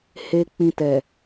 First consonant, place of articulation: glottal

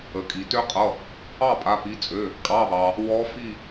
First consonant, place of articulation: velar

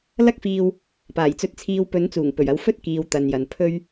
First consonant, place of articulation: alveolar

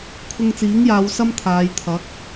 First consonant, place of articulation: velar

